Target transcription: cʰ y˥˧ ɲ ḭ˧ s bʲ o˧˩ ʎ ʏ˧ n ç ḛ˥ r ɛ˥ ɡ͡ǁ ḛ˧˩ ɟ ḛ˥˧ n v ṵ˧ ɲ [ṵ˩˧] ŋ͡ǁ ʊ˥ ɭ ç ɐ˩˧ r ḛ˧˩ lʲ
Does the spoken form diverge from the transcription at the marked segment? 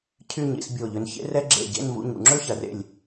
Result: no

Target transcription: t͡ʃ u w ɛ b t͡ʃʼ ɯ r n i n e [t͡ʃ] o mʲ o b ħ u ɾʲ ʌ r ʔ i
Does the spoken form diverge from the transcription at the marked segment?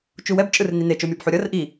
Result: no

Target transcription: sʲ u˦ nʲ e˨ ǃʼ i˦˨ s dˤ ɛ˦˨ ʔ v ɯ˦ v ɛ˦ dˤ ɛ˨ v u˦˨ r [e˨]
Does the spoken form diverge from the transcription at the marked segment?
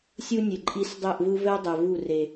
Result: no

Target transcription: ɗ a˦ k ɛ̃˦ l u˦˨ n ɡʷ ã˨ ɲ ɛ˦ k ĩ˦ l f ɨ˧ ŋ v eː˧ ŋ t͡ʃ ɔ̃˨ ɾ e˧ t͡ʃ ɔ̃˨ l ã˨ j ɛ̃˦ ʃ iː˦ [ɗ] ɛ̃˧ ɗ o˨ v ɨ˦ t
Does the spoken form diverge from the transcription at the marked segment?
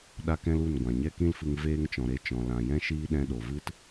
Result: no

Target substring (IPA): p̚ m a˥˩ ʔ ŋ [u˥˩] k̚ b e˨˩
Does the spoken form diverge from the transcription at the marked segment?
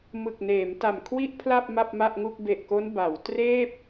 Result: no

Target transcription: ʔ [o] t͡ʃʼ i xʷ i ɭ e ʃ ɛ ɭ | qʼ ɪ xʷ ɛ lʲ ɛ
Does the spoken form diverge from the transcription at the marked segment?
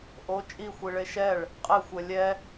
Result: no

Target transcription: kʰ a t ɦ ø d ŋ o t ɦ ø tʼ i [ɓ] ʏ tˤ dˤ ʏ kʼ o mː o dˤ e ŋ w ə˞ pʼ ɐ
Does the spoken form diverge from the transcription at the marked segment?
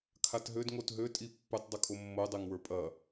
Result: yes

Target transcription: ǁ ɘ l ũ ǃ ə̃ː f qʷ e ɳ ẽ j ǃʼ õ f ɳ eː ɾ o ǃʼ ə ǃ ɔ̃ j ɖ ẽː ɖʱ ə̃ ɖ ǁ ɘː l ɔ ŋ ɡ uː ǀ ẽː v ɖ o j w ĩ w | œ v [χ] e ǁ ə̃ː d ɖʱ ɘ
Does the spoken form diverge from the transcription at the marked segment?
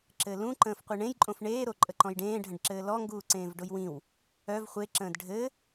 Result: yes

